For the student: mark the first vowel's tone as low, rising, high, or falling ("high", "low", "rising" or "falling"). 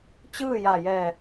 falling